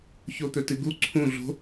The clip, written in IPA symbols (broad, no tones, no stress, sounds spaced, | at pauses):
ç o t̪ ɵ t ɨ ɡ u ǀʰ ũ ɮ o̤